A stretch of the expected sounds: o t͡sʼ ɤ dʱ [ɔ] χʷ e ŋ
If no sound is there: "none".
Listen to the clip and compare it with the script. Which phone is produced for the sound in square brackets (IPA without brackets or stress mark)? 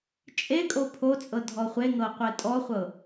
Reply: ɔ